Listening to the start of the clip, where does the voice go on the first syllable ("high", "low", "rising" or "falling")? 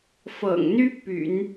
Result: low